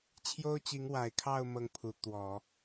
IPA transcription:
t͡ɕʰ j o˥ ʊ̯ t͡ɕ i˧˥ ŋ w a˨˩ ɪ̯ kʰ ɑ˥˧ ʊ̯ m ɤ˥˩ ŋ pʰ u˧˥ t̪ w ɔ˨˩˦

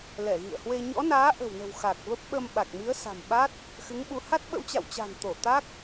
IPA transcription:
l ɛ˧˩ ɣ ḭ˧˨ ə̯ h w e˧ ɲ ɔ̰˧˥ n aː˨˦ ʔ ə̤˨˩ w n ə̤˨˩ w x a˨˩ k̚ v ə˦˥ p̚ ɓ ə˧ m ɓ a˨˩ k̚ m i˨˦ ə̯ s a̤˨˩ m ɓ a˦˥ t̚ | x ɨ˨˦ ŋ ɓ u˨˦ h a˦˥ t̚ ɓ ə̰˧˥ w t͡ɕ a̰˧˨ w t͡ɕ a̤˨˩ n t̪ o˧˩ t̪ a˦˥ k̚

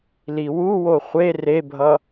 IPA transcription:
l i w u w o χʷ e r e bʱ ʌ

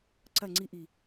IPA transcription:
ǀ ɐ ŋ͡ǀ i ʔ i

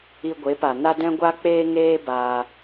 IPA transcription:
i˧ ɡʷ e˨˦ p a˨ n a˦ d ɛ̃˦ ɡʷ a˦ k͡p eː˦ ŋ eː˦ b aː˧

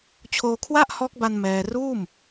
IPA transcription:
t͡ɕʰ oː˧ kʰ w a˥˩ ʔ h ɔː˦˥ k̚ b a˧ n m ɛː˧ r uː˥˩ m

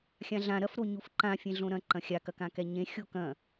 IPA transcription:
xʲ ã ɮ ã ɾ ɐ f ɾ o ɲ u f ǃ ã fʲ ẽ ɮ õ ɾ ɐ̃ ǃ ɐ̃ xʲ a k ɐ k ã k ɛ ɲ ẽ xʲ o k ɐ̃

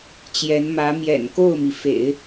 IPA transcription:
t͡ɕ j ɛ˧˥ n m ä˧˥ m j ɛ̰˨˩ n k o˥˩ ʊ̯ m i˩ f ḛ˨˩˦ ɪ̯

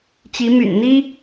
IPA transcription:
t͡ɕ i˧˥ m y̰˨˩ n n̪ i˥

